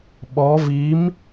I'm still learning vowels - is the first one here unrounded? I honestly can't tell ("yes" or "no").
no